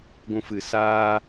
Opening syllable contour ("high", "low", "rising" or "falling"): high